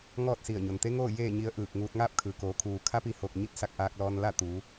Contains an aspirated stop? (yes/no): yes